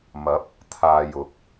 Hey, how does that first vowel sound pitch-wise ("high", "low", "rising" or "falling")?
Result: rising